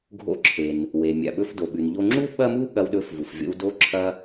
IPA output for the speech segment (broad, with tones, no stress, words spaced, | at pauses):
ɡʱo̰˧ǁʰe˩n | we˩mʲa̰˩ɓɵ˧f do˩ɓʉ˩n ʎo˧ŋ͡ǁu˥ ɓɐ˥mu˥ ɠɐ˧wɗɵ˧fvu˩fvʲo̰˧w do˧ǁʰɐ˧